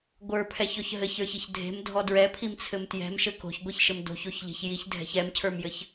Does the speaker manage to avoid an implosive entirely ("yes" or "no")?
yes